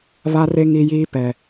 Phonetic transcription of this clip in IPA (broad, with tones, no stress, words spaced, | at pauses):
βa˦re˦ ŋi˦jiː˦ pɛ˨